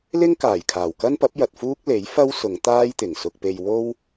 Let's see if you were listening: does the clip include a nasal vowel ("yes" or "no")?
no